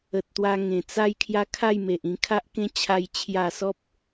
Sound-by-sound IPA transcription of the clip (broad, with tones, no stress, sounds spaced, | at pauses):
ə˨ t̚ t̪ w a˧ ŋ ẽ˨˩ t͡s a˦ j kʰ j a˦ kʰ a˥˧ j m e˨ ʔ ĩ˧ kʰ a˦ ʔ k ẽ˦ t͡ɕʰ a˦ j t͡ɕʰ j a˥˧ s ɔ˦ p̚